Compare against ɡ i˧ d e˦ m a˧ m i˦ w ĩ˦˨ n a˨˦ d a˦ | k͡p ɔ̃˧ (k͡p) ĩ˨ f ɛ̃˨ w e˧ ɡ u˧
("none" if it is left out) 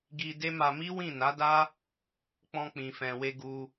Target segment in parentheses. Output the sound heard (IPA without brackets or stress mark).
k͡p